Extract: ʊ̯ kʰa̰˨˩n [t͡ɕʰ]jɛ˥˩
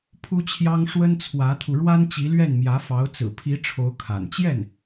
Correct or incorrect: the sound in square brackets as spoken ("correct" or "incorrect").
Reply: incorrect